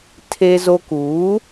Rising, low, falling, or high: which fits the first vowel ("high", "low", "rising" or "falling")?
high